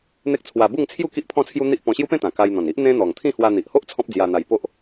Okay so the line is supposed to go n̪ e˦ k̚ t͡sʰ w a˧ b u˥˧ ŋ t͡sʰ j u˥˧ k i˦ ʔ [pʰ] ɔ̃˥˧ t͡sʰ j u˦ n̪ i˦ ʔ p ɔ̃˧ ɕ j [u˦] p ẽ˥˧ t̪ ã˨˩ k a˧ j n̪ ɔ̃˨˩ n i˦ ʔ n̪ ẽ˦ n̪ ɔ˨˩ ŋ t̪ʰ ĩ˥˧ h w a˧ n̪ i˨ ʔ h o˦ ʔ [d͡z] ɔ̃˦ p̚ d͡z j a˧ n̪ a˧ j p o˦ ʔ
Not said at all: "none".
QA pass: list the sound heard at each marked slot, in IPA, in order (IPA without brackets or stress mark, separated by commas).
pʰ, u˦, t͡sʰ